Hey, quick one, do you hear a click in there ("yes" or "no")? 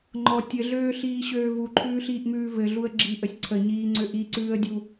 yes